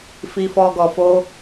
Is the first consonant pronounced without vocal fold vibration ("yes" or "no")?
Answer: yes